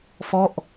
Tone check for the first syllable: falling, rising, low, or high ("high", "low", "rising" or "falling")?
falling